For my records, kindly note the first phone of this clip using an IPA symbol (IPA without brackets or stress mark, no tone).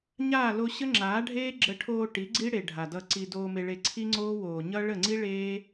ɲ